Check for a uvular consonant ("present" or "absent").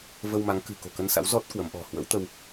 absent